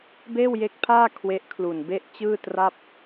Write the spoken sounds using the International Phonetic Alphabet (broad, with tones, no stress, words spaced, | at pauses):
beː˥˩wje˦˥k̚pʰaː˥˩ kʰwe˦˥ʔkʰlu˨˩n be˦˥ʔ t͡ɕɯː˥˩tra˥˩p̚